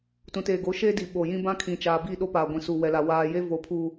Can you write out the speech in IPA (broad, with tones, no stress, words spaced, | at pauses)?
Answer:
tũ˨teː˨ɡo˨˦ ʃeː˦di˨ ɓo˨jĩ˦ bã˦ kʰĩ˨t͡ʃaː˨bi˦˨ ɗo˦paː˨ɡʷĩ˨su˨ wɛ˨la˨ waː˨je˦ vo˨pʰuː˨